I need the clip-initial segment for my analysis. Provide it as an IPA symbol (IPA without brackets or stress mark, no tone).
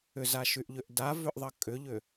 ʏ